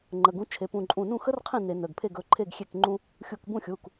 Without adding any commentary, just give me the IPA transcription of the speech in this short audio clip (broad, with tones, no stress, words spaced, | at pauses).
ŋ͡ǃə˩˧˩ɡũ˨˥ t͡ʃʰe˩˧˩pũ˧˩ǃʼũ˧˩ nũ˥˩xə˥rqʰĩ˥˩ ne˧˩˧nə˩˧˩ɡpʰe˥˩ ɡɵ˨˥ǃʰe˥˩ɡxʲe˥˩k ŋ͡ǃũ˥ | xʲu˧˩kbũ˥˩xʲu˩˧˩k